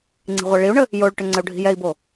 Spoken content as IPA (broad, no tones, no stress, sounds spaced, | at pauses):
ŋ͡ǀ i̤ ʁʷ ɛ ɭ i u̯ ɳ ə | j o ɭ ʈ ʏ ŋ͡ǀ ə u̯ ɖʱ i̤ j ɛ i̯ b o